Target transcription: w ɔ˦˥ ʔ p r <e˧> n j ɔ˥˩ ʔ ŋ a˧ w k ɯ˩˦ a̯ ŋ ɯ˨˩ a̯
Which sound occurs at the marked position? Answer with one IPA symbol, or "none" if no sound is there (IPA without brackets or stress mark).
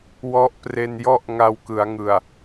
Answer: e˧